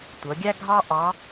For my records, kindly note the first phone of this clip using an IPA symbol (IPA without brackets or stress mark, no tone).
tʷ